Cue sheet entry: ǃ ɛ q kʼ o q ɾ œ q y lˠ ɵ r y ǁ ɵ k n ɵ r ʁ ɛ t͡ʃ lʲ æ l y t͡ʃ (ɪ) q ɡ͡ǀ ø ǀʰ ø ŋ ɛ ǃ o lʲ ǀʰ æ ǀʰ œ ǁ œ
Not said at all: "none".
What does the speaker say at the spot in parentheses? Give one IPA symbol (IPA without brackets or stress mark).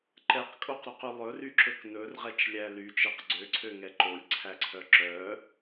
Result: ɛ